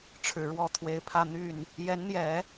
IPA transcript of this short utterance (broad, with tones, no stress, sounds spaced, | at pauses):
ʈ͡ʂʰ ɻ̩˨˩ ɻ w ɔ˥˩ t̪ʰ w e˧˥ ɪ̯ pʰ ä˥˧ n̪ y˥˩ n | j ɛ˧˥ n n̪ j ɛ˨˩˦